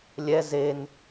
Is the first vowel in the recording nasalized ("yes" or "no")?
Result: no